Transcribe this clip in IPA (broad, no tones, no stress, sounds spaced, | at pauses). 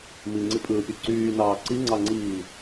m i ŋ͡ǀ i pʼ ɯː pʲ u ǀ yː n ɑː ǀ i ŋ͡ǀ ɑ ŋ͡ǀ iː